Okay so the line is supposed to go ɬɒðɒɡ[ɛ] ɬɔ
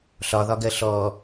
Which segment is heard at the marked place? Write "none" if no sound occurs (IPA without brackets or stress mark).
ɜ